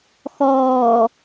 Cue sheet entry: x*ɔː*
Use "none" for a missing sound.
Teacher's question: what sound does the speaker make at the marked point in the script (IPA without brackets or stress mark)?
ɔː